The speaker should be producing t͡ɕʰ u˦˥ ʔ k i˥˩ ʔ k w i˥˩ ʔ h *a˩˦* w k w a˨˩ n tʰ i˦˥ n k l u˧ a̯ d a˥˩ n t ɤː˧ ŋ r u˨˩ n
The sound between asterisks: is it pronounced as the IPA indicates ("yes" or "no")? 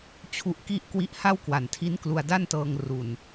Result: no